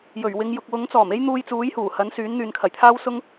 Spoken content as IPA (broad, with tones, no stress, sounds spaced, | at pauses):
j ɵ˨˩ ɥ w ɪ˨˧ ŋ j ʊ˨ k̚ w ʊ˨˥ ŋ t͡s ɔː˨˩ m e˥ j n̪ uː˧ j t͡s uː˨˥ j h uː˨˩ h ɐ˨˥ n s yː˨˥ n n̪ yː˨ n kʰ ɐ˨˩ j t̪ʰ aː˥ w s ʊ˥ ŋ